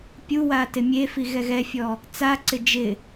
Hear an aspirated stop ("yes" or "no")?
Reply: no